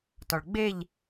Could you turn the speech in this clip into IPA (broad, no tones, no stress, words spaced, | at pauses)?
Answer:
tɔɭɡ͡beʎ